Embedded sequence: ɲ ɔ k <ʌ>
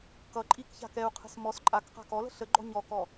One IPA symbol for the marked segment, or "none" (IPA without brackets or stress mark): ɔ